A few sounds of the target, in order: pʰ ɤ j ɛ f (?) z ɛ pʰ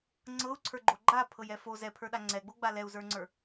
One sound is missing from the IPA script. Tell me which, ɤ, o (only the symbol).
o